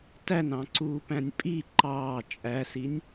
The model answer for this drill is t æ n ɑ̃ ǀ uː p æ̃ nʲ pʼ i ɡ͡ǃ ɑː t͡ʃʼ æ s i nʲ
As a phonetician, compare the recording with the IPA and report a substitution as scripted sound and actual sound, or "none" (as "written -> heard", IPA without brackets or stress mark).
ɡ͡ǃ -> ǃ